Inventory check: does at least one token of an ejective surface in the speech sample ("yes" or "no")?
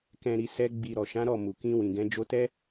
no